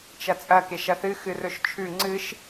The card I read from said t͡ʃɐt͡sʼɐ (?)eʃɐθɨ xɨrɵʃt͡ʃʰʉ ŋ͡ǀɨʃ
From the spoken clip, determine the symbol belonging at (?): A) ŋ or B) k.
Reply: B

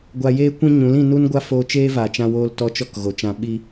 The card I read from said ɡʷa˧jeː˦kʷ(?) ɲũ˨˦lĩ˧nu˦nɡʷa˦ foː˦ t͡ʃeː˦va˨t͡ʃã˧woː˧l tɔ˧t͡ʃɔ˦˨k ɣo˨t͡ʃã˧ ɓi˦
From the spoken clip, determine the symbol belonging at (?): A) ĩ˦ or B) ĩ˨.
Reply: A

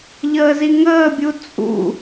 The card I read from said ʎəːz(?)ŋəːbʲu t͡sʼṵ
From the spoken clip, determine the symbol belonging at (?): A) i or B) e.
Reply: A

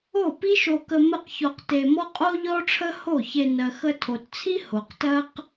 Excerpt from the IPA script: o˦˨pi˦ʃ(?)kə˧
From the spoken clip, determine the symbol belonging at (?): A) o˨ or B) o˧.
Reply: B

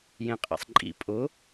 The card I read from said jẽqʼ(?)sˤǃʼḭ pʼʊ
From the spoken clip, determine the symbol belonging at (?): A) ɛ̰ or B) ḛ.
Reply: A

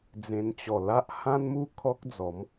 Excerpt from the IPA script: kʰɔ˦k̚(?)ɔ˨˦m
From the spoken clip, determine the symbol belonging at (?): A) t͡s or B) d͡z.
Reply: B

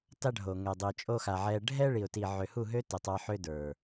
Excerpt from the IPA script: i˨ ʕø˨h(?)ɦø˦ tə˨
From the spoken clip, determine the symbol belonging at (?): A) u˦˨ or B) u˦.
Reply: A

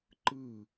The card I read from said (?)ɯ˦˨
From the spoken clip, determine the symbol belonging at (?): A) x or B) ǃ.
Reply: B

